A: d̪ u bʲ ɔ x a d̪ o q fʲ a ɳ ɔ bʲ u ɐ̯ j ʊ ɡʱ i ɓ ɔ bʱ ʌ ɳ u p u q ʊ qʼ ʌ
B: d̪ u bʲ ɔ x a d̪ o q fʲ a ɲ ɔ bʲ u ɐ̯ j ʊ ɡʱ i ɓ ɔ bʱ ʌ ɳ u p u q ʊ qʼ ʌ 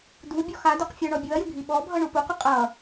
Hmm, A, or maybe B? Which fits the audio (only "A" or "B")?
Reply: A